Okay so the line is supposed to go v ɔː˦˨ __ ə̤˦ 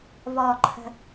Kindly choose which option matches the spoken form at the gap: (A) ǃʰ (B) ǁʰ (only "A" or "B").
A